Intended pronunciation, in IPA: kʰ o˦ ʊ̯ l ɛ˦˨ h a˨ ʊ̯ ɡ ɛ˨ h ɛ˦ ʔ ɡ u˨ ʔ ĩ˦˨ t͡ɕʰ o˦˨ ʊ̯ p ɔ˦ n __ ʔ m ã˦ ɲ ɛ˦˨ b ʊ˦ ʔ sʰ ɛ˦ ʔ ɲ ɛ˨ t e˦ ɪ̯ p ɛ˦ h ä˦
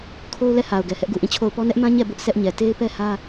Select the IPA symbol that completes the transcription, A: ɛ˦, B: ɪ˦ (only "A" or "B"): A